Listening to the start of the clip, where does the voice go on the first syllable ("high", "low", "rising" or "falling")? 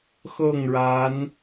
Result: falling